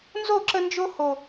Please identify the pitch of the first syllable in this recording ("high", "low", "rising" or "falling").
falling